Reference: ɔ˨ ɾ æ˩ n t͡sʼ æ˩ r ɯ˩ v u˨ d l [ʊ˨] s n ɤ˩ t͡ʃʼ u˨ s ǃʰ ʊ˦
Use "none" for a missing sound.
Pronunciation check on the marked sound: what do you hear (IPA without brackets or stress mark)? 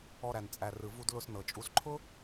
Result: ʊ˨